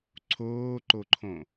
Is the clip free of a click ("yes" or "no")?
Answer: no